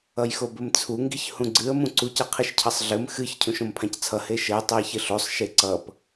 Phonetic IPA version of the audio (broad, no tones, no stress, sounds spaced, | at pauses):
ʌ j x o b ɘ m t͡sʰ u ŋ ɡ i ç h ũ ɡ͡ǀ ɨ ə̯ m ũ ǀ u c ʌ qʰ ɨ ʃ cʰ ʌ sˤ ɮ ɘ m x ɨ ç cʰ ũ ʃ õ m pʰ ã c t͡sʰ ʌ h e ʃ ɘ j tˤ ɨ j ç ɘ ɬ o sˤ ʃ e ǀ ʌ p